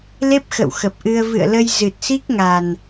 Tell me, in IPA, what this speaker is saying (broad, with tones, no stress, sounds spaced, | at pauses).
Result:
l e˦˥ p̚ x ə̰˧˨ w x ə˨˩ p̚ ʔ ɨ˧ ə̯ v ɨ̰˧˨ ə̯ l ə˧ j z ɨ˨˩ t̚ s i˦˥ k̚ ŋ a˨˩ n